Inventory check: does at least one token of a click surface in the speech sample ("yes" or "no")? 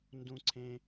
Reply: yes